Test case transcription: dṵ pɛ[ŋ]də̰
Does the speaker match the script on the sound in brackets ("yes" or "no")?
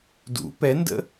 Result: no